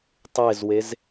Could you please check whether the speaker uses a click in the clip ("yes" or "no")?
no